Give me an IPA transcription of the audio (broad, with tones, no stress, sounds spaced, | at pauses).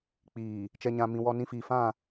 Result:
k͡p iː˨ | t͡ʃ ɛ˨ ɲ ã˨ m ĩ˨ w ɔ˦ n ĩ˦ f iː˨ f ã˦˨